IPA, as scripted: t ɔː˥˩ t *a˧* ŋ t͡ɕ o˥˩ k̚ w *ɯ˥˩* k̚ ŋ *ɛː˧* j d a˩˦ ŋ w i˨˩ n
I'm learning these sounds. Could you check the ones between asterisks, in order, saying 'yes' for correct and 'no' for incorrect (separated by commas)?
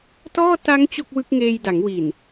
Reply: no, no, no